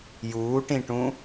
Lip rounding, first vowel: rounded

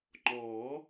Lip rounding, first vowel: rounded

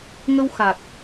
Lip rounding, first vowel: unrounded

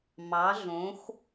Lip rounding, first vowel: unrounded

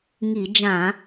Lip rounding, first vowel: unrounded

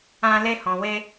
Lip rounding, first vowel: unrounded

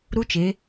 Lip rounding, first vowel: rounded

